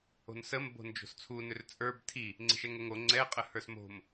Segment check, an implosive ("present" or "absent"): absent